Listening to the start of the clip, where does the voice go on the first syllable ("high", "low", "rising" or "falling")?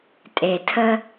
low